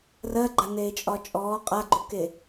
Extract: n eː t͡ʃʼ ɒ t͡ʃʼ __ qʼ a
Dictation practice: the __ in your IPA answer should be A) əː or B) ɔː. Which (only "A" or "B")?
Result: B